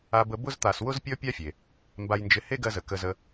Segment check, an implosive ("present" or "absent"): absent